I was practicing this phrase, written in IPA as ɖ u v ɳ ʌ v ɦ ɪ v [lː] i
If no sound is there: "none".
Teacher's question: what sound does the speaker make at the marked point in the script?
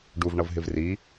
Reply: r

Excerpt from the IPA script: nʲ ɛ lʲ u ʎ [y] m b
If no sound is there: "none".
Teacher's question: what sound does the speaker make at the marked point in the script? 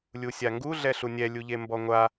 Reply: e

